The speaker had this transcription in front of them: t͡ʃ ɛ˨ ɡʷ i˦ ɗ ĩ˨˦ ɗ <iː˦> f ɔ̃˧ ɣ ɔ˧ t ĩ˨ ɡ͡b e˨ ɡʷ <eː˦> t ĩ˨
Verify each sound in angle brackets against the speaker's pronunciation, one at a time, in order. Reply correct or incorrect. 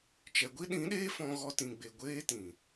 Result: incorrect, correct

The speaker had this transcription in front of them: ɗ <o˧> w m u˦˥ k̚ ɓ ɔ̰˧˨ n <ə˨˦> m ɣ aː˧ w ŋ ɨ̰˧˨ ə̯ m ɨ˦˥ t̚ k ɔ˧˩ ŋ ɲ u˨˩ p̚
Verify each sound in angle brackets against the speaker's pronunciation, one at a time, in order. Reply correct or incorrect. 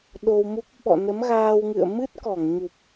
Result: correct, correct

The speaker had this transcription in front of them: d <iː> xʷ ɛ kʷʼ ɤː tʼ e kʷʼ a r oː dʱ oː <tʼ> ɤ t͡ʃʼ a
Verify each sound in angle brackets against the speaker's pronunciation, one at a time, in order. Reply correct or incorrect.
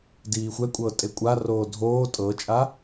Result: correct, correct

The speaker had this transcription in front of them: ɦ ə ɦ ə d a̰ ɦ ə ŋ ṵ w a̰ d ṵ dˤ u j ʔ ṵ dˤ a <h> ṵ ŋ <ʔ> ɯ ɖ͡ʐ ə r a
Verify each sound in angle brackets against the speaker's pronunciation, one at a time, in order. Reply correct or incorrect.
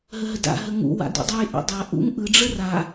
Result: incorrect, correct

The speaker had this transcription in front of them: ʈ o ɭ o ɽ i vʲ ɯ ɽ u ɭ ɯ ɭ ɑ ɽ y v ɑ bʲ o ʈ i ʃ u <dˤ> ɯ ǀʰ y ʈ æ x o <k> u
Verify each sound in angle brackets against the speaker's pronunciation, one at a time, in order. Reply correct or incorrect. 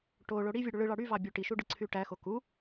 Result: incorrect, correct

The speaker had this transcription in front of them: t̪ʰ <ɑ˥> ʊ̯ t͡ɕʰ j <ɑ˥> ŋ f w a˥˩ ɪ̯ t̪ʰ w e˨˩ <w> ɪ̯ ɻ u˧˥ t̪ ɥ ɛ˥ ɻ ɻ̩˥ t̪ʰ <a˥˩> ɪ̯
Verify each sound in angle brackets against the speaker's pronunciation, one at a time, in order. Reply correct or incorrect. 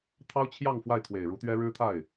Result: correct, incorrect, incorrect, correct

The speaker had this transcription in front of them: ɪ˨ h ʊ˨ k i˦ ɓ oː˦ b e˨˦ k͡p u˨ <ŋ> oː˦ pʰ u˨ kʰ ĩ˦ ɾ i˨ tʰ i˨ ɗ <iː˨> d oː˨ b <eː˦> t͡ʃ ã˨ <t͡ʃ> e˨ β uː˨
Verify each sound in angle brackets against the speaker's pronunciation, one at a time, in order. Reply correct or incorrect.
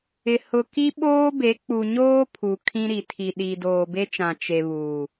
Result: incorrect, correct, incorrect, correct

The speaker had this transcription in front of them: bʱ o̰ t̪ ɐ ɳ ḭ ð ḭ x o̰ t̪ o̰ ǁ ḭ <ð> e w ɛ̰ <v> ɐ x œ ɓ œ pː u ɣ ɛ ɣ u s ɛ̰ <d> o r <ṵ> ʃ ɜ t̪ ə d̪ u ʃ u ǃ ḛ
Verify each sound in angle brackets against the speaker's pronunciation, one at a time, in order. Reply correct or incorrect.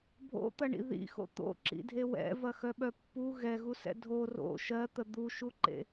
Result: incorrect, correct, incorrect, incorrect

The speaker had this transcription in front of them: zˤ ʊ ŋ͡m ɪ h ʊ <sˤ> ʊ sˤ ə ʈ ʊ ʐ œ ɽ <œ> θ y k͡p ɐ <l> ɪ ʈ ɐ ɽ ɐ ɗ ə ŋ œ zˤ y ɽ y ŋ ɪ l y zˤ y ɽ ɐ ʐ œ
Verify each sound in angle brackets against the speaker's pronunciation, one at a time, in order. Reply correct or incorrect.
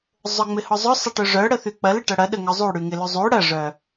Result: incorrect, incorrect, correct

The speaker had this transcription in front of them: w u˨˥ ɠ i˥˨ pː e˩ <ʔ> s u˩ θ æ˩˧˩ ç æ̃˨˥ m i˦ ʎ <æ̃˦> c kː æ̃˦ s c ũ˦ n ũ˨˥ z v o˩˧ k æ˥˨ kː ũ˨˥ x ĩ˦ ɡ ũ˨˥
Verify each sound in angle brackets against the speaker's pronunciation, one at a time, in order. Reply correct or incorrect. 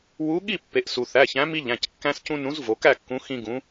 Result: correct, incorrect

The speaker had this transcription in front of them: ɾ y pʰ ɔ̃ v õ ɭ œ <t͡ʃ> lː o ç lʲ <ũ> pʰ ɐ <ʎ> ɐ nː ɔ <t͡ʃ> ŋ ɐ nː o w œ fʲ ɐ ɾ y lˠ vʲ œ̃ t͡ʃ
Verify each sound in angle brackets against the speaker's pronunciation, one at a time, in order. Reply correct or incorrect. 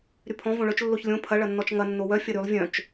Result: correct, incorrect, incorrect, correct

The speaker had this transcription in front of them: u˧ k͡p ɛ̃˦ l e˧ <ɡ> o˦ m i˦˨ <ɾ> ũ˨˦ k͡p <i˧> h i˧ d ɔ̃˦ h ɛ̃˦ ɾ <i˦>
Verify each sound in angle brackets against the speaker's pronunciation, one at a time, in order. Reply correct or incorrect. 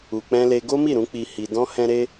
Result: correct, correct, correct, incorrect

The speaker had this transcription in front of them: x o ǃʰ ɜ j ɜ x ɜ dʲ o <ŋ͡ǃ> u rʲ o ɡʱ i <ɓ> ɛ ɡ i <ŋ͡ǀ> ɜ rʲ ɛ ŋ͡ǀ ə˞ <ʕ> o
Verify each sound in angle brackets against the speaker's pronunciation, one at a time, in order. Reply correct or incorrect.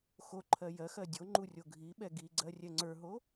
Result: correct, correct, incorrect, incorrect

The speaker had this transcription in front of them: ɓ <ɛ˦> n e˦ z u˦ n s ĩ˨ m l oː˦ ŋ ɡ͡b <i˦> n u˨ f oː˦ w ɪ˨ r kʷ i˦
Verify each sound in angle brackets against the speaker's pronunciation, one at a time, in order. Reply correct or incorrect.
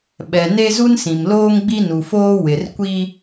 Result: incorrect, correct

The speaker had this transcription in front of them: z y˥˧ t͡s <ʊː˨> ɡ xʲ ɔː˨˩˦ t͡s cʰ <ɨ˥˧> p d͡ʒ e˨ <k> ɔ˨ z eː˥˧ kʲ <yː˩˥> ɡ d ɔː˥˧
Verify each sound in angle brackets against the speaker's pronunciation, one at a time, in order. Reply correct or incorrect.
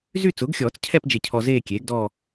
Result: incorrect, incorrect, incorrect, incorrect

